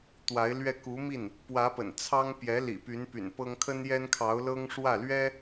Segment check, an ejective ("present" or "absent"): absent